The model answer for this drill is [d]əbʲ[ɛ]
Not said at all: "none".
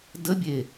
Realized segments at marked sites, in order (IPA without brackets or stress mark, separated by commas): d, e